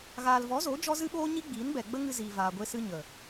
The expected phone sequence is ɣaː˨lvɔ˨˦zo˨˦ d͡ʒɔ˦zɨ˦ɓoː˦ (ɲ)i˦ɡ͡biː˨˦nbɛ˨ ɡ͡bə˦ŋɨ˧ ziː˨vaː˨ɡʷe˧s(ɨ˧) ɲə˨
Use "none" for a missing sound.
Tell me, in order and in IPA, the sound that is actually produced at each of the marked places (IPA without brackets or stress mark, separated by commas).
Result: ɲ, ɨ˧